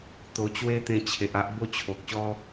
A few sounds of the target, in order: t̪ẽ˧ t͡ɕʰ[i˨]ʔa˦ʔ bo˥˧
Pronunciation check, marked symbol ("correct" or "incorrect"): incorrect